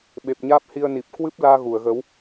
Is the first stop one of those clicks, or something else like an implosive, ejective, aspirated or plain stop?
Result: implosive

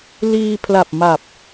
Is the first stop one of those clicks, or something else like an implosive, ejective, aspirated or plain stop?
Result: aspirated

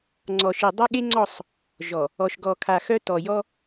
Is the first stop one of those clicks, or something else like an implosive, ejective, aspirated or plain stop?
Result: click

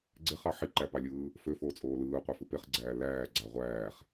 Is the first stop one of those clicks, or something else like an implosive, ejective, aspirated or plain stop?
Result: click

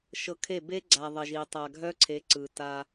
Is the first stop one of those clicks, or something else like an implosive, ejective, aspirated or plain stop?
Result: aspirated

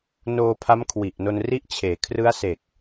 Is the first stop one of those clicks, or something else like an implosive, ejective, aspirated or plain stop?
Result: aspirated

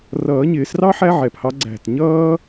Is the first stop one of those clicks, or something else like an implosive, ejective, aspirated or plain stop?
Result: plain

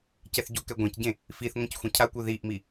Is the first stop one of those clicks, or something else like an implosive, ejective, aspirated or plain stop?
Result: plain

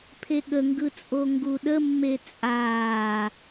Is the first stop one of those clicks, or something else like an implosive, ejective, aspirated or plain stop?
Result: aspirated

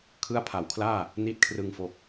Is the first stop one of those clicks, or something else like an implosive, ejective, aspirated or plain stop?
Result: aspirated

